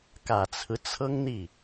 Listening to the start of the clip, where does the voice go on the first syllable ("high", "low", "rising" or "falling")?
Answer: low